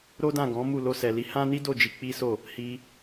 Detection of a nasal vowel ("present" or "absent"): present